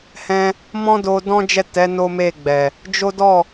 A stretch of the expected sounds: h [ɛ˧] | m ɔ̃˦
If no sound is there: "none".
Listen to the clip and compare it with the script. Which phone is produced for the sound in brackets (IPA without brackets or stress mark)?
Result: ɛ̃˧